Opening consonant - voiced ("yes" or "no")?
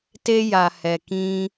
no